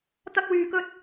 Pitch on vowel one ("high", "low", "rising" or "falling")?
high